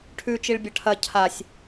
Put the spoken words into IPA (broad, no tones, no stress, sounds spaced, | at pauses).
ʈʰ ʉ t͡ʃ i ɭ bʲ ɐ ʈʰ ɐ cʰ a sʲ